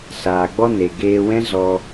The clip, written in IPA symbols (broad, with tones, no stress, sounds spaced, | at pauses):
s aː˨ ɡ͡b ɔ˧ n e˨ ɡ eː˧ w ɛ̃˦ z ɔ˧